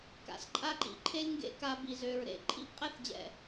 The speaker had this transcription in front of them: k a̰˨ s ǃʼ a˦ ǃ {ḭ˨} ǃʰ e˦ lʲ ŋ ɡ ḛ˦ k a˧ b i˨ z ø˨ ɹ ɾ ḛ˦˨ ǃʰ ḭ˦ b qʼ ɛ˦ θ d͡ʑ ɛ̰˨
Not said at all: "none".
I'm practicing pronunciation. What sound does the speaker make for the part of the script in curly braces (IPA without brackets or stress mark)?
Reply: ḭ˨